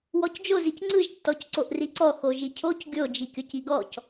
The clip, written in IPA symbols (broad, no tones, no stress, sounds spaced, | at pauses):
w ɔ c d͡ʒ o z i c ŋ͡ǀ ɯ ʒ tː ɔ c ǀ o ʔ r i ǀ ɔ x o ʒ i cʰ o c ɡʲ o d͡ʒ i kʲ o c i ɡ ɔ c